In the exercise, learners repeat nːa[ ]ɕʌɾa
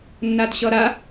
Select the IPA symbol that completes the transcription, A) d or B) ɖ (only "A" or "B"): A